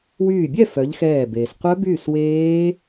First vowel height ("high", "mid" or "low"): high